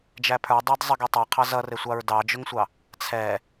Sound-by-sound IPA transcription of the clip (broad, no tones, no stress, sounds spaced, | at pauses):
d͡ʒ æ pʰ ə˞ dˤ æ d zˤ ə ɡ ɛ tˤ ʌ qʰ ɑ z ʌ r ɪ sʷ ɑ ɹ d ɑ d͡ʒ ʊ ŋ sʷ ɑ | t͡sʰ ɛ